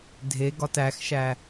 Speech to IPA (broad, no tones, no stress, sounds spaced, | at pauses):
dʱ e ɡ ɒ t æ x ʃ æ